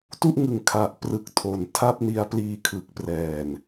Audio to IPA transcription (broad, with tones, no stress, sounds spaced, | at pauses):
t u˥˩ ʔ ŋ ɯ˨˩ ŋ kʰ a˨˩ ʔ p r ɯ˨˩ k̚ tʰ o˨˩ n tʰ a˥˩ p̚ n i˧ a̯ p l iː˧ kʰ ɯ˨˩ k̚ p r ɛː˨˩ n